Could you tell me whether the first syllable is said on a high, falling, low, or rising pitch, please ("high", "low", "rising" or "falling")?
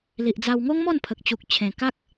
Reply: low